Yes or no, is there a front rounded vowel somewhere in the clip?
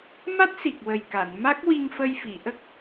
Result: no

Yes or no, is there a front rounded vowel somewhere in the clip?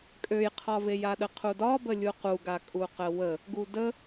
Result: yes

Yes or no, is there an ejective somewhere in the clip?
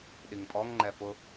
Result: yes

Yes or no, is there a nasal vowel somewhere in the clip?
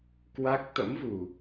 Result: no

